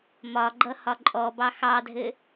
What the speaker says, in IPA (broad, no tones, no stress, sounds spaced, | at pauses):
m ɒ ɡ͡ǃ ʌ h ɒ ǃʼ ɔ b ɑ x ɑ dʱ ɘ